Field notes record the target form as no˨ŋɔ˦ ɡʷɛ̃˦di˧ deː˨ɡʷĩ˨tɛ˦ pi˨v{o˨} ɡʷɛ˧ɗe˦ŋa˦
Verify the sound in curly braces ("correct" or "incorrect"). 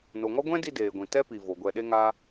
correct